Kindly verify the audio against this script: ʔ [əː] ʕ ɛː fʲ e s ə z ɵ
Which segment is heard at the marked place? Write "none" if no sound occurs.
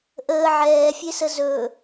əː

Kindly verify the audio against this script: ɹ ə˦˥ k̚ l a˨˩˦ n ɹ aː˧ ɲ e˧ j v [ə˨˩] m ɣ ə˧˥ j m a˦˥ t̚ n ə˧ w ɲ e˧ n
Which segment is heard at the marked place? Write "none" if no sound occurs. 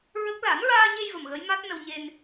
ə˨˩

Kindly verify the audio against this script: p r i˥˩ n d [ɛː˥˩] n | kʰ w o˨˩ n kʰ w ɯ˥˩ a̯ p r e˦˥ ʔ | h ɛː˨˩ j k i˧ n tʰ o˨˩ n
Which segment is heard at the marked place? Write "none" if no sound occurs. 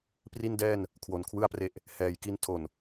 ɛː˥˩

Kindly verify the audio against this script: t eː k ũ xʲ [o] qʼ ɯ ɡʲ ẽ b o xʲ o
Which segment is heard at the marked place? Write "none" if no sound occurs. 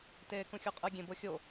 o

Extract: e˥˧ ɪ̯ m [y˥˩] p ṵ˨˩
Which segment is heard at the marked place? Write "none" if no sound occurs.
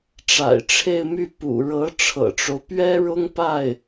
y˥˩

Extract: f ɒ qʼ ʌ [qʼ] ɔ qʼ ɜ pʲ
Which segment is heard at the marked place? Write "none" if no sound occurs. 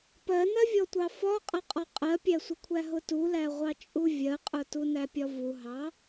qʼ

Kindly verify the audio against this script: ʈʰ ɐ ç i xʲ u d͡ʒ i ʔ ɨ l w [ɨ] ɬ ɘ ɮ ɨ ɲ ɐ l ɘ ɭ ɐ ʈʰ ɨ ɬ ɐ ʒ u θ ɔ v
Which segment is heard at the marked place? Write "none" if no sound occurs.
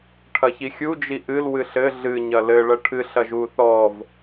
ɨ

